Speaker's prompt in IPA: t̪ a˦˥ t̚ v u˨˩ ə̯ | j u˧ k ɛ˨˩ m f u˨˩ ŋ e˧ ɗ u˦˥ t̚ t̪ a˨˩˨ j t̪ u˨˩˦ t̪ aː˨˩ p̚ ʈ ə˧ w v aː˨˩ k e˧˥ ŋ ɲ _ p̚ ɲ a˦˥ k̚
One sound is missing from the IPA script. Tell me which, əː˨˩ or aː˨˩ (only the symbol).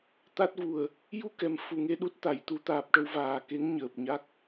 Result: əː˨˩